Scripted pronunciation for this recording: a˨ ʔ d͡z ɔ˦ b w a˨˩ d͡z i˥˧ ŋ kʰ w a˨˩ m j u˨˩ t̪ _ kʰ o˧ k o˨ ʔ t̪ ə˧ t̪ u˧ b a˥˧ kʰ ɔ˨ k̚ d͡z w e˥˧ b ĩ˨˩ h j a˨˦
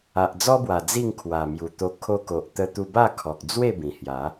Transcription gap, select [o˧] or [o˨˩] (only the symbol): o˧